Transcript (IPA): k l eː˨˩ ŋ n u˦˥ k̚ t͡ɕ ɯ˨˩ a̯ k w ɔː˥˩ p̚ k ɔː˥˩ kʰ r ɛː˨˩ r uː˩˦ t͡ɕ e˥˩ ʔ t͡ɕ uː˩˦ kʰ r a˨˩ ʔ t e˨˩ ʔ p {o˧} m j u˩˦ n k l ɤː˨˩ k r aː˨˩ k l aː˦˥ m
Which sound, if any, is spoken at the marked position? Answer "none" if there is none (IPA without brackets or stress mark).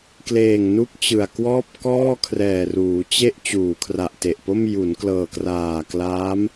o˥˩